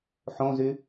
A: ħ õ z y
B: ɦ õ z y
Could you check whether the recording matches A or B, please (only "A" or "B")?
A